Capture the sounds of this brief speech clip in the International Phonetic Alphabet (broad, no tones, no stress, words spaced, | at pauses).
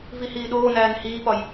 vihiːɗoːnæːn hiːpɒj